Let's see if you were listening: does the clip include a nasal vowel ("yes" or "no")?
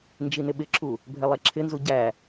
no